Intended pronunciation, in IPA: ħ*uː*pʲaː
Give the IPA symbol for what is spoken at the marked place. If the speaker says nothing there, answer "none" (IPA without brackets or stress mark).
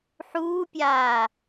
uː